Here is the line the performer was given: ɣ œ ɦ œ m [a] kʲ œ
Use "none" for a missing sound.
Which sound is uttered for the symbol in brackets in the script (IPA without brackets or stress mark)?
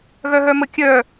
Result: ə